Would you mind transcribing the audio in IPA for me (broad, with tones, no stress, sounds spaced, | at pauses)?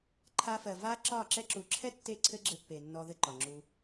ǃʰ a˧ f ɜ˨ v a˦ ǁ ɒ˦˨ ǁ ɛ˧ ǁ u˨˦ ǁʰ ɛ˦ tː e˦˨ ǀʰ ɘ˦ ɡ͡ǁ ɘ˧ pː e˨ nː ɔ˧ ð ɘ˦ ǃ ɒ˨ ŋ͡ǁ u˧